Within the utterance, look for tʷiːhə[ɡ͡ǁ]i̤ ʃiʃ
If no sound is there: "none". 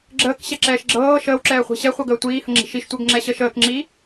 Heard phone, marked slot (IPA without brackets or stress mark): ŋ͡ǁ